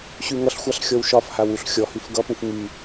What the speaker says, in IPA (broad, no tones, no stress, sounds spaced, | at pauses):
ɕ y ŋ ʌ ɬ xʷ a ɬ xʲ ɔ w ʃ ɒ f h a w u ɬ xʲ ɔ h y f ɡ ʌ p ũ f ŋ y